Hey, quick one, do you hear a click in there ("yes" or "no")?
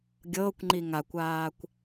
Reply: yes